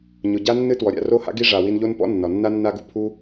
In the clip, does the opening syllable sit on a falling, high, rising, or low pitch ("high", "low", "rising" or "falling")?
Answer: low